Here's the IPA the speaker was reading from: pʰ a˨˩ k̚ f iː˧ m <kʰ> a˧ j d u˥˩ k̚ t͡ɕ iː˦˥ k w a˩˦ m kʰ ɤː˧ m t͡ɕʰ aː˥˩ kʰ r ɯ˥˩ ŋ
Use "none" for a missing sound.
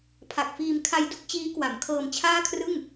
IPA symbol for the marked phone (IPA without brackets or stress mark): kʰ